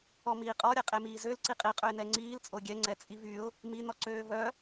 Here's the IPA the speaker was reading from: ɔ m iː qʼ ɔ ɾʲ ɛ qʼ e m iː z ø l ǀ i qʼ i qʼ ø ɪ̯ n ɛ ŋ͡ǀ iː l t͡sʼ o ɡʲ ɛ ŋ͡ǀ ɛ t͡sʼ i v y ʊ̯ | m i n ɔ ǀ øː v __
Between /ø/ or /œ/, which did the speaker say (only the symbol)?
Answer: œ